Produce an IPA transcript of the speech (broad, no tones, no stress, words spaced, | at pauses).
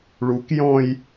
ɭukjɔ̃j